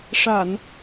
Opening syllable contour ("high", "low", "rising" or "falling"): low